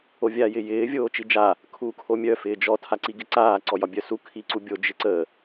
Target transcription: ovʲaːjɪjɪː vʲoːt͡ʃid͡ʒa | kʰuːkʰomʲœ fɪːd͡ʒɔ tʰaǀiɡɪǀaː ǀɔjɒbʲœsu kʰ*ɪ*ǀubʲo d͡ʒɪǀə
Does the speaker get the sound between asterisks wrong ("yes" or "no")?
yes